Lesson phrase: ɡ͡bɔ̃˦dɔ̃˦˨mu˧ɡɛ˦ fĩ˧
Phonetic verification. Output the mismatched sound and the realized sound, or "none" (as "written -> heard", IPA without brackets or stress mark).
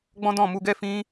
none